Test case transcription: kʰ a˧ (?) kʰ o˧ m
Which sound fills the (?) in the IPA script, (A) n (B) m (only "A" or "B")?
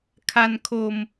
A